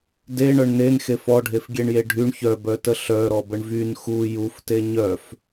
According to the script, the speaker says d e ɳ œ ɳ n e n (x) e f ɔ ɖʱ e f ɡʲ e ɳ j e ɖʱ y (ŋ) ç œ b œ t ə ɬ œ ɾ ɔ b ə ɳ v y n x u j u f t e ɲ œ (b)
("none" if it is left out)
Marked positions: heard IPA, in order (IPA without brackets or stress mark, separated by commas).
x, ɳ, f